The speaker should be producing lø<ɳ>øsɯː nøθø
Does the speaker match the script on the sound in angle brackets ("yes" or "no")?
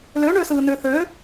yes